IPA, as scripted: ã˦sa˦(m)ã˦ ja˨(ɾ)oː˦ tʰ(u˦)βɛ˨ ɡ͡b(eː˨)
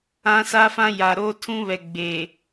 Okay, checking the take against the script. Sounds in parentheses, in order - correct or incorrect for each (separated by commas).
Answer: incorrect, correct, incorrect, correct